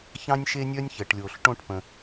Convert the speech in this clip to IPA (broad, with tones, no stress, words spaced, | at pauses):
çɑ̃˥nʲʃe˥nʲœ˥nʲ çə˩ʈlʲo˩ɬ ʈõ˥ʈpə̃˩